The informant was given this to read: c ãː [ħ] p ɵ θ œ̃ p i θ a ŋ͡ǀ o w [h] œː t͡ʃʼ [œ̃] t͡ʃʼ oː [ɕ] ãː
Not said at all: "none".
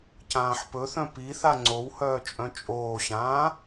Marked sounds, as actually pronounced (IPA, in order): ħ, h, œ̃, ɕ

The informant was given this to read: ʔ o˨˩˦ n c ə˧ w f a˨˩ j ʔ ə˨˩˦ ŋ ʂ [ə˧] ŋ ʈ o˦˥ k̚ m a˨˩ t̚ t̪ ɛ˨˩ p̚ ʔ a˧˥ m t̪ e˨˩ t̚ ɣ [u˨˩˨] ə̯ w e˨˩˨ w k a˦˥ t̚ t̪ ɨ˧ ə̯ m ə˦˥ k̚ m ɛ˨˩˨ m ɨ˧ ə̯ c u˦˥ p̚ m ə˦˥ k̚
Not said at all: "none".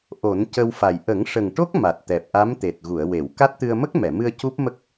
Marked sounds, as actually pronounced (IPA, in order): ə˨˩, u˨˩˨

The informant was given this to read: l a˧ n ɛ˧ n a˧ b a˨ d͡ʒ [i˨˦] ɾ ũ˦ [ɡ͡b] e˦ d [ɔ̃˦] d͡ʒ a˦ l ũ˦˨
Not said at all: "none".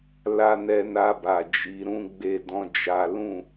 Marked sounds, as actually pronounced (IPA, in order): i˨˦, ɡ͡b, ɔ̃˦

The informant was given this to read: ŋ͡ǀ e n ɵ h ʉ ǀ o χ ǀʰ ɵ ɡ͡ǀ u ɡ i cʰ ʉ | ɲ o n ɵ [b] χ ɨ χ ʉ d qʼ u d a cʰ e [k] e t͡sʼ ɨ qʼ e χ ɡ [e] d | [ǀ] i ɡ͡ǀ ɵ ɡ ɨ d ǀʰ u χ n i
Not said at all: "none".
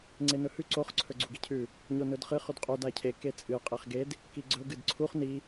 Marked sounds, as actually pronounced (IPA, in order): d, k, e, k

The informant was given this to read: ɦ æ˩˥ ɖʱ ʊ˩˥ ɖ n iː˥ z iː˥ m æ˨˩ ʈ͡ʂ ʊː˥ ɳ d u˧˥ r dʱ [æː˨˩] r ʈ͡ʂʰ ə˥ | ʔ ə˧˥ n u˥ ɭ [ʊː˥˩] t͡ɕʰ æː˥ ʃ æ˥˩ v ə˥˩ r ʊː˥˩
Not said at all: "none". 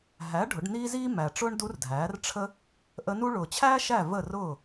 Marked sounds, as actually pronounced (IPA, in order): æː˩˥, ʊː˨˩

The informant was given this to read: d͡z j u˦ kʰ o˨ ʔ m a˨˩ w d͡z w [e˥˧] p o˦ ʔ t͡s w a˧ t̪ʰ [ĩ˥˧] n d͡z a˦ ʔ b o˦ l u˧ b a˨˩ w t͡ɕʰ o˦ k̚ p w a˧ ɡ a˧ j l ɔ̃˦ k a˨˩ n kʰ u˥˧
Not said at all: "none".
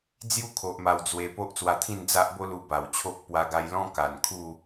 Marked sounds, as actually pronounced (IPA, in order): e˧, ĩ˥˧

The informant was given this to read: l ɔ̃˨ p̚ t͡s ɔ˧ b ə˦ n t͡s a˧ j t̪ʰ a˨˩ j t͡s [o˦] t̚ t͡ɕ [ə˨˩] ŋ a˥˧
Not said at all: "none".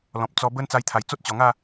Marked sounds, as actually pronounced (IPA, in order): o˦, ɔ˨˩

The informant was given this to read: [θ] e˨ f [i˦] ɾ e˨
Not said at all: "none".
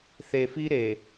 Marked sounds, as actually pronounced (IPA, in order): θ, i˦

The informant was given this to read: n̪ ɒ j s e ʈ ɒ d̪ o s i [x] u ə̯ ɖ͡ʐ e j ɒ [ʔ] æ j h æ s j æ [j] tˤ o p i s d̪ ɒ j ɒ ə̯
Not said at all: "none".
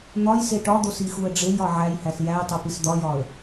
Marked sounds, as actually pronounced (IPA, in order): x, ʕ, j

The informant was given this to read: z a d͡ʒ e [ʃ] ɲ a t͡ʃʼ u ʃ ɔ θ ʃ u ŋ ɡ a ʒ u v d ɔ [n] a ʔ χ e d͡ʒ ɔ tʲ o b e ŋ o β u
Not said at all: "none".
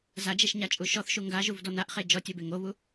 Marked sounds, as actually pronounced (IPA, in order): ʃ, n

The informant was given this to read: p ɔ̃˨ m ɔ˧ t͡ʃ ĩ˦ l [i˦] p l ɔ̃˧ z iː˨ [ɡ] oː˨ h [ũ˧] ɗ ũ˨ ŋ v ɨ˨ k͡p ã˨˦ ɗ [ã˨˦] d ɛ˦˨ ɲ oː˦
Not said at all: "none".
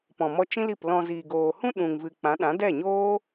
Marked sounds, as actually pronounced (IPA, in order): i˦˨, ɡ, ũ˦, ã˨˦

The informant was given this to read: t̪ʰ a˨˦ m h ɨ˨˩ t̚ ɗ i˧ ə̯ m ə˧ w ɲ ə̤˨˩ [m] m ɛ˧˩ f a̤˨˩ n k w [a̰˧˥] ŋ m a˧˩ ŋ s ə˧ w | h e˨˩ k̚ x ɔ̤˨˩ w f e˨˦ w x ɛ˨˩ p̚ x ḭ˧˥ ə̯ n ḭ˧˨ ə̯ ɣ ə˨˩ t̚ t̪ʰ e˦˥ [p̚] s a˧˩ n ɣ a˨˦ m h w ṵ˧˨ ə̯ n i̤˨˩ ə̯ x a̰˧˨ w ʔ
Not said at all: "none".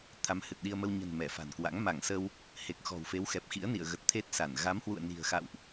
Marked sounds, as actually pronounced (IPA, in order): n, a̰˧˥, t̚

